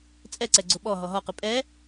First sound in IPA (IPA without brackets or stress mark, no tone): t͡sʼ